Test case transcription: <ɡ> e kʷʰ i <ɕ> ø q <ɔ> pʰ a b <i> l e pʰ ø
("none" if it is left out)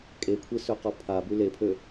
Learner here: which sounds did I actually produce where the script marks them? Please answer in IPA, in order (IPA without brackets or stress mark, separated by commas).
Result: kʼ, s, ɔ, y